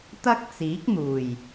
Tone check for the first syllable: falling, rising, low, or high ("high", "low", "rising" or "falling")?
high